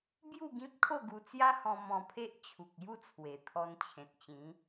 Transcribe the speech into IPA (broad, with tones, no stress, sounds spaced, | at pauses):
b j u˥˧ ɡ ĩ˦ p̚ kʰ o˥˧ ɡ u˧ t͡s j a˦ h ɔ̃˧ m ɔ̃˧ pʰ e˦ ʔ t͡ɕʰ u˨ k̚ j u˥˧ t͡sʰ w e˨˩ t̪ʰ ɔ˧ n t͡ɕʰ ẽ˨ t̚ t͡ɕ ĩ˨˦